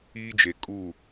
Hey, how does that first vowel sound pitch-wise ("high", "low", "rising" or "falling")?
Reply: high